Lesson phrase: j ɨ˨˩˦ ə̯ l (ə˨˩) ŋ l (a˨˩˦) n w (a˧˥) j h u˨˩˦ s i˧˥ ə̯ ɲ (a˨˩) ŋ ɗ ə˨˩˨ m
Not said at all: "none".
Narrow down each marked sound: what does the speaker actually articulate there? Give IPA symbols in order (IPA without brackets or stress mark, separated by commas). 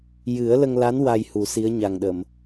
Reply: ə˧, a˧˥, a˧, a˨˩